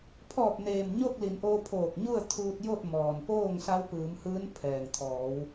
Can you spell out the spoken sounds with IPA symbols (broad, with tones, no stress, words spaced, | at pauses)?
pʰɔː˧˩p̚neː˩m ɲo˥˨k̚li˩˧nʔoː˧ pʰoː˧˩k̚ɲu˥˨ə̯ t̪ʰuː˧t̚jo˥˨t̚mɔː˩npoː˥˨ŋ sa˧˥wpɯː˩˧mhɯː˧˥n pʰɛː˩ŋt̪ʰɔː˩˧w